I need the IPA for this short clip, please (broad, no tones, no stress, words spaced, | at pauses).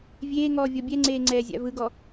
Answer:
vʲeːŋɔː vʲɔbʲɛŋ͡ǀeː ŋ͡ǀɛːzʲa̰vɯɡɔ